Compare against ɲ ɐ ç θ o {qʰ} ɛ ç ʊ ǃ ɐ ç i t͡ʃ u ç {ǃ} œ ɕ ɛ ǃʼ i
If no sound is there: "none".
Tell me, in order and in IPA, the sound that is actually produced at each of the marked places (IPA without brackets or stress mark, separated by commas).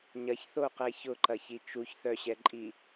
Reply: q, θ